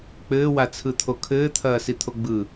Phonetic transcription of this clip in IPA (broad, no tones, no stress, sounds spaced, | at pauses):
k͡p ɘː w a t͡sʰ ɯ t̪ʰ o kʰ ɘː t̪ʰ ɐː s i t̪ʰ o ɡ͡b ɯ